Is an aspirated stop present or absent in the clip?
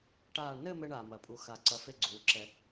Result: absent